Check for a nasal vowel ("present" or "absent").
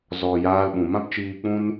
present